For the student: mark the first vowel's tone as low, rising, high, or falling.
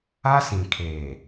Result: high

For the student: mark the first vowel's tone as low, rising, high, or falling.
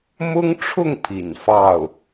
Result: high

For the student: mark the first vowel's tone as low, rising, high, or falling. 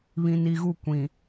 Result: low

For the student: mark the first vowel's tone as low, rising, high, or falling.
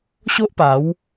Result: high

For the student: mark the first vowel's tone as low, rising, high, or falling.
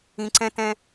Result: low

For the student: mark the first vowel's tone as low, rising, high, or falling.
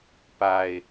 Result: low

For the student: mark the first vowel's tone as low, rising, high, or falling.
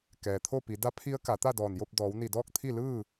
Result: low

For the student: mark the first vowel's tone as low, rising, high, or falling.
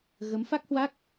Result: rising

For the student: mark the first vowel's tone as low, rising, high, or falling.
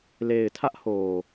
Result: low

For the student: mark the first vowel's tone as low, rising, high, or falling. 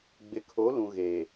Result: low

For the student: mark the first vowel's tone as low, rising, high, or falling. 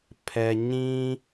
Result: low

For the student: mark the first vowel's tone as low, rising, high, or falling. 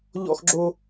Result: high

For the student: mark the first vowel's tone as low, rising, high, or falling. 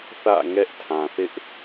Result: falling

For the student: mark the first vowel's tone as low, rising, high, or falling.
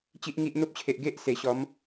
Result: high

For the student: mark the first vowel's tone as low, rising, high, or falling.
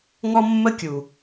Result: high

